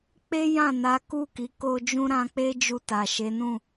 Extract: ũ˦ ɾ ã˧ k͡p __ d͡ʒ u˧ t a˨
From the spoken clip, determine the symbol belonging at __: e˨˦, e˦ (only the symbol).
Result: e˦